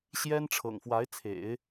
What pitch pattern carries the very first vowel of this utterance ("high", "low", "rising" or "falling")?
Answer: high